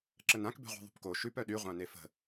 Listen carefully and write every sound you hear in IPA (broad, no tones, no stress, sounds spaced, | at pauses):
ǁ ə n ã k b e̤ ʁʷ e̤ ðˤ ṳ p k o ʃ ʉ p œ ɗ y ʁʷ ã n e f ə̤